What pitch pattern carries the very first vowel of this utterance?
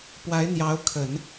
rising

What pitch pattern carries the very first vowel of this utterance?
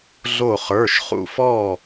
falling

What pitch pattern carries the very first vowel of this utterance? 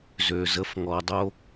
low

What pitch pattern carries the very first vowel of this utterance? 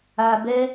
low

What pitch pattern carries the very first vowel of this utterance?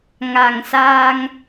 low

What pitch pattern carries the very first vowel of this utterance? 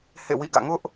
falling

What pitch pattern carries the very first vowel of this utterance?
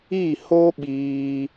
falling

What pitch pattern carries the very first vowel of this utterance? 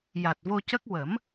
low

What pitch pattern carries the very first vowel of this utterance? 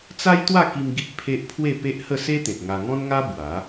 high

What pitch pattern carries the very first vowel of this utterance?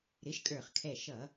rising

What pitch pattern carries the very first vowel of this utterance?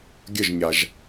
falling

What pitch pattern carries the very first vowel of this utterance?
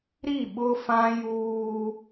falling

